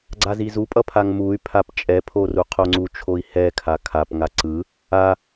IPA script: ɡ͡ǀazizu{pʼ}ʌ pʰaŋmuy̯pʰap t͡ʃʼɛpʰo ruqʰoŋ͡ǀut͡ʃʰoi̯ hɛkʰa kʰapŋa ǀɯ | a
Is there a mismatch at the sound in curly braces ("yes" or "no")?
no